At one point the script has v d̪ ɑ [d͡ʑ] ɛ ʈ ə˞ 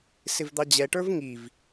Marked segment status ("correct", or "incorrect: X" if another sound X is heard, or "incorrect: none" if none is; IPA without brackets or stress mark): correct